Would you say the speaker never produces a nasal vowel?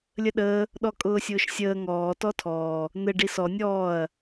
yes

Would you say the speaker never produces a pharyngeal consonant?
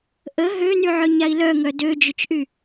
no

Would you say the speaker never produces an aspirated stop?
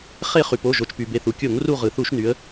yes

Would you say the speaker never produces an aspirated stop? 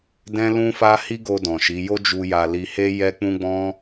yes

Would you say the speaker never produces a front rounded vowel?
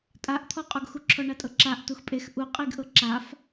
yes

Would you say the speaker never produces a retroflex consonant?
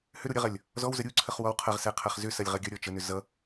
yes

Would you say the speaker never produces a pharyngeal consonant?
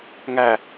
yes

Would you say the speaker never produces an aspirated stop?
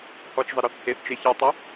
yes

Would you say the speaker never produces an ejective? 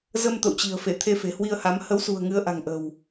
yes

